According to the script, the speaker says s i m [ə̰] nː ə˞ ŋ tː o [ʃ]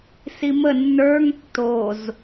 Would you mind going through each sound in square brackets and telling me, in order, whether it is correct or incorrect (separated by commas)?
incorrect, incorrect